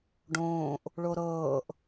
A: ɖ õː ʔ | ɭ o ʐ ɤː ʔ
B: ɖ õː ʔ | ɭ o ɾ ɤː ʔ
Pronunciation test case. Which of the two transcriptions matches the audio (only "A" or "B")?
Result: B